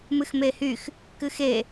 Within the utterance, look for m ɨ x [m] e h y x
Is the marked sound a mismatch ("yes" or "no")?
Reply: no